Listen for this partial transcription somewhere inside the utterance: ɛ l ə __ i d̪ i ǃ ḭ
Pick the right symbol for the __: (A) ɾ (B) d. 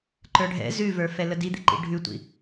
B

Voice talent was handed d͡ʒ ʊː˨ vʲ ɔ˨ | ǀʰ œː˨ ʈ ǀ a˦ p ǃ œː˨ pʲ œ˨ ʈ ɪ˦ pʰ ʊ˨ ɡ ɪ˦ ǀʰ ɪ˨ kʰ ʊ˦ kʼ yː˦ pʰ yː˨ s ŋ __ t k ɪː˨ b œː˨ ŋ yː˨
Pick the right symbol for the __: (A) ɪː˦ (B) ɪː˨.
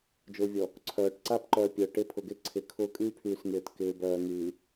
B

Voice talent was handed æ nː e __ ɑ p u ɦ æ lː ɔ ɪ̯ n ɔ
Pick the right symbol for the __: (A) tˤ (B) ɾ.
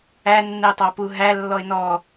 A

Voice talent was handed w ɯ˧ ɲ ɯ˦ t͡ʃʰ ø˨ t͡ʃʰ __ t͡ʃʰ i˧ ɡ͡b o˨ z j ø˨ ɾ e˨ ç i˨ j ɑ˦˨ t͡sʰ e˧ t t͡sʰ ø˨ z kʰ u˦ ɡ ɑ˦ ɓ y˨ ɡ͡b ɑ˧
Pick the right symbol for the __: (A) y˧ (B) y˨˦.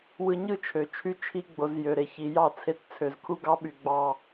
A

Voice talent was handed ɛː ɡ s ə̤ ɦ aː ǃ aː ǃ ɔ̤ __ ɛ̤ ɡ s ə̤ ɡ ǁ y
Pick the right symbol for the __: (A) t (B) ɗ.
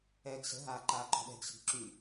B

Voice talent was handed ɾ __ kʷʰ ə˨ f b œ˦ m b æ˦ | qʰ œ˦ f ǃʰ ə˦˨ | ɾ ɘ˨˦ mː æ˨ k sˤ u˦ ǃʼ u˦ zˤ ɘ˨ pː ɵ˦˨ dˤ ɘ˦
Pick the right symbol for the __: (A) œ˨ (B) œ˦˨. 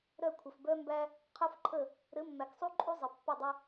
B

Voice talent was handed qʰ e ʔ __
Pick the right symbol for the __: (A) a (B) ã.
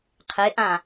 B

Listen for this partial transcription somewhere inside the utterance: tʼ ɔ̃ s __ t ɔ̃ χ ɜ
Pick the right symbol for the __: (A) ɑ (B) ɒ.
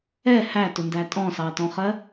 A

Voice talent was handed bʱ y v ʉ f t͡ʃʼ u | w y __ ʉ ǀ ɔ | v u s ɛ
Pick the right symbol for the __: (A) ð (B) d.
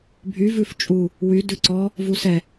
B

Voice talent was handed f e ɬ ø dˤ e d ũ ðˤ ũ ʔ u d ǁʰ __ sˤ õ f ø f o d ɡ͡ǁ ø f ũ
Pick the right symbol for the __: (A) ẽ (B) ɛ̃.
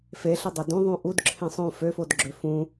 A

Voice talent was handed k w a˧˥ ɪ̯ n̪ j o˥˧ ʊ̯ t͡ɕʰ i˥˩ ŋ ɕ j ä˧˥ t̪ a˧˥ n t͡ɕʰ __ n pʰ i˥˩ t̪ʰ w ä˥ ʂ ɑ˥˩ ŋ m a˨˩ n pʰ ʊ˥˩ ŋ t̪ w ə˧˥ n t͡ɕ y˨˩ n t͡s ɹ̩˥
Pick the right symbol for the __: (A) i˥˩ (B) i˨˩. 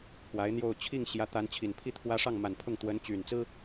B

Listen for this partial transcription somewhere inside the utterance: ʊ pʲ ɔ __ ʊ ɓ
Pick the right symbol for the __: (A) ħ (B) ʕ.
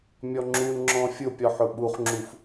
A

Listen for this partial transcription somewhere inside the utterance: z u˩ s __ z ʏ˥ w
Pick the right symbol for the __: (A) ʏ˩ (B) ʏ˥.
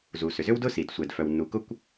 A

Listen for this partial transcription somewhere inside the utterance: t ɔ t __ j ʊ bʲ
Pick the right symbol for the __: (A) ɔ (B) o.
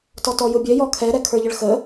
A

